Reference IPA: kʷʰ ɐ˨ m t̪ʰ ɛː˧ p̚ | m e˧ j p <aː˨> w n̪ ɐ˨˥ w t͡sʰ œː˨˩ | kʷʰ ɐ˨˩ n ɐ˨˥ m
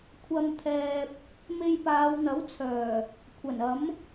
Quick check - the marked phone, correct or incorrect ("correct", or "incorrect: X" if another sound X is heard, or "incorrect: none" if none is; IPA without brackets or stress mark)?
incorrect: aː˨˧